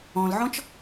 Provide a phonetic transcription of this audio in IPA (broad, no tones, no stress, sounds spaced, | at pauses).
ɔ̃ l ʕ ɔ̃ t͡ʃ